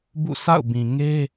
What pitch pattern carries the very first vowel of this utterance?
falling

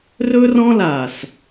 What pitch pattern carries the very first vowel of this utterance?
high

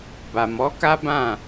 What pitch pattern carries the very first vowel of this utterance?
low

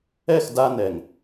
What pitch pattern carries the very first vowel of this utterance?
falling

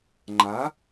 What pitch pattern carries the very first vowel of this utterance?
rising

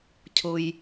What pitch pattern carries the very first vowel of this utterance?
low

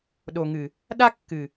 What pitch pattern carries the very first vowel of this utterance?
low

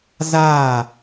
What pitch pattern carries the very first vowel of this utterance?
falling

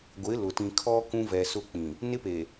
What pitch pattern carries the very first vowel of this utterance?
rising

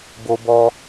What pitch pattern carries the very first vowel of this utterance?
high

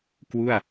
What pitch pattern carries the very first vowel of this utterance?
falling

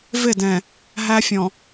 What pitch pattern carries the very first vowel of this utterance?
falling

